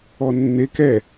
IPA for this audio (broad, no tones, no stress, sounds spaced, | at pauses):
ɔ nː e k ɛ